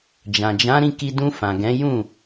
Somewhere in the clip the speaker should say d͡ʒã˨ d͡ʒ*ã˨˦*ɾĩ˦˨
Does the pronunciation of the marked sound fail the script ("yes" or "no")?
no